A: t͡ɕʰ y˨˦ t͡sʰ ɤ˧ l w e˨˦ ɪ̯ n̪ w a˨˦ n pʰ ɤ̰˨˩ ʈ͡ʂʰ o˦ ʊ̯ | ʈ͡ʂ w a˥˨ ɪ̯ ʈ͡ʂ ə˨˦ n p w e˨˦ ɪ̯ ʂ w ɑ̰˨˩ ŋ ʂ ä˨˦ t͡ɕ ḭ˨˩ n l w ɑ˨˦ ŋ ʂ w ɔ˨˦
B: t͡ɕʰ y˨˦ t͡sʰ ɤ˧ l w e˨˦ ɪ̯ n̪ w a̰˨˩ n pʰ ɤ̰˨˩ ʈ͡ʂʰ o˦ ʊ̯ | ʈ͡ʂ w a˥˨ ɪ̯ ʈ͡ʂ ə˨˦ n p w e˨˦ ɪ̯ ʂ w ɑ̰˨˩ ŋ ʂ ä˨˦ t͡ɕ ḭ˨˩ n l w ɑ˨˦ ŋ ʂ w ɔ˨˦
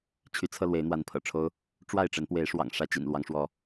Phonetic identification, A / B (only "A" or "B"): A